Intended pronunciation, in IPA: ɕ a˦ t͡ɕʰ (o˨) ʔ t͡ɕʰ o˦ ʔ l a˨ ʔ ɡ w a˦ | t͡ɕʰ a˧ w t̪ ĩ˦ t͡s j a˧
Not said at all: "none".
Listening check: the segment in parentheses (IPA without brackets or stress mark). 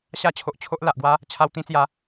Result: o˨